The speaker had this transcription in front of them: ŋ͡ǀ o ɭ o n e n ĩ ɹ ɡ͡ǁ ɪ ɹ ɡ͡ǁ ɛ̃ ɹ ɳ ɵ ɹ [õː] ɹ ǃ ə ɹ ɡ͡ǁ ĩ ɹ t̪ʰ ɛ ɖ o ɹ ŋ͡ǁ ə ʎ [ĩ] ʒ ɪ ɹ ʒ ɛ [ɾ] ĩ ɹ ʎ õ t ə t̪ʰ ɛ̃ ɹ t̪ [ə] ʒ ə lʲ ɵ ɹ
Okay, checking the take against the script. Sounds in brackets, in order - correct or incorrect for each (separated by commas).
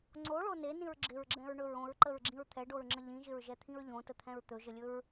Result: incorrect, correct, incorrect, incorrect